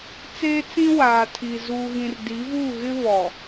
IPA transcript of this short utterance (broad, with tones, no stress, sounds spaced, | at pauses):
t͡s eː˦ t͡s ĩ˦ w aː˨ tʰ i˨ z uː˨ ɣ ĩ˨ r d i˨˦ v u˦˨ ɣ ɪ˦ β ɔ˨